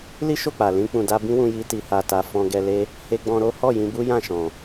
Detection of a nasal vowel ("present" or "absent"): present